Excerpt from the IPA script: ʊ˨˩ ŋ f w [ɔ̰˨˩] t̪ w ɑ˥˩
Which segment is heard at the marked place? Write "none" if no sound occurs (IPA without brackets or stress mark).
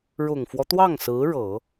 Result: ɔ˦